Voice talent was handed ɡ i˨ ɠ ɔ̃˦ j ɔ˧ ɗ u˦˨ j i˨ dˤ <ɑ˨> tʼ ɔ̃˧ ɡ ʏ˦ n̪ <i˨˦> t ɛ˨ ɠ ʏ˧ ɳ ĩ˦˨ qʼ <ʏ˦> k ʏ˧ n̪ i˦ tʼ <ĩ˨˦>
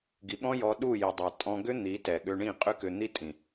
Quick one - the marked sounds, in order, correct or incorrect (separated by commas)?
correct, correct, correct, incorrect